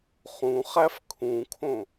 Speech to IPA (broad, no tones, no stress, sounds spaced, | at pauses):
χ ũ χ æ f kʰ ũ kʰ õ